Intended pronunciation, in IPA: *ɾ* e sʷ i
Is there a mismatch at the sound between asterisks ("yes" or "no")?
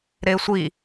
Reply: no